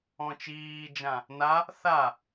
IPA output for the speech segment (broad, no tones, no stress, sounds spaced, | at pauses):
ɔ̃ t͡ʃ iː d͡ʒ ã | n a | θ a